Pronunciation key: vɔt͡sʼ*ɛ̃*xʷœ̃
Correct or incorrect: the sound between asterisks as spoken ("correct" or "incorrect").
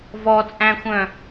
incorrect